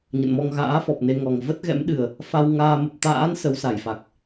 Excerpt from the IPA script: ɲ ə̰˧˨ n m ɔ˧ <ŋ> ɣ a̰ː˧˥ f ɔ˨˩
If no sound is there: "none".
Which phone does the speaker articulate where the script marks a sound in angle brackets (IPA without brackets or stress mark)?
ŋ